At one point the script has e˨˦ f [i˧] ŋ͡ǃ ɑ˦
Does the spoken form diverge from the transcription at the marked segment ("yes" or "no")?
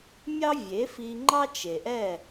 no